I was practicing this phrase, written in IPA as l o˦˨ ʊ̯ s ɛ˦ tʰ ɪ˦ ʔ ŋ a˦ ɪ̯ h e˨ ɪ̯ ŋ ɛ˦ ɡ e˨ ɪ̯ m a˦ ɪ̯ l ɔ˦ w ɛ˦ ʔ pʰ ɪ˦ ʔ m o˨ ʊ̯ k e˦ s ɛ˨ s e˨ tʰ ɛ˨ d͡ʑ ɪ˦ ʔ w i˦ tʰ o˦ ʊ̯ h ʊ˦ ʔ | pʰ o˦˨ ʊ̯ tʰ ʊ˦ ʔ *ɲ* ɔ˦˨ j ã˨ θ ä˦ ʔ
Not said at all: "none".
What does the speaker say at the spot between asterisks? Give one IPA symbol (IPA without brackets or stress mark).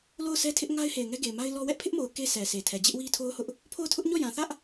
ɲ